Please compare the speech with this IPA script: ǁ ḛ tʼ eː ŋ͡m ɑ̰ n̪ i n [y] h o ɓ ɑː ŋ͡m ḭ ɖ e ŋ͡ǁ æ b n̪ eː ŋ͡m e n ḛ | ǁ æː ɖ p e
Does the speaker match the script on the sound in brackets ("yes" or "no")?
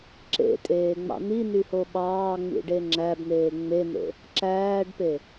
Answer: yes